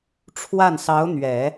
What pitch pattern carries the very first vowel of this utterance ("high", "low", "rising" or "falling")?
falling